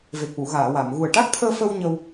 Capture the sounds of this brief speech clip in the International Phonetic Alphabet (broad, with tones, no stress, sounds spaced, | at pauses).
v e˨˩ k̚ w u˨˩˨ ɣ aː˨˩˨ w a˨˩˨ m ɣ u˨˩ ə̯ ʈ a˦˥ k̚ t̪ʰ əː˧ f ə˧ w ɲ ə˧ w